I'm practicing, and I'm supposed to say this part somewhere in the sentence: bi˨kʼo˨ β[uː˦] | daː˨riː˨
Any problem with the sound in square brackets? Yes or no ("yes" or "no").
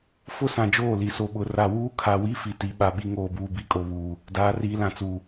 yes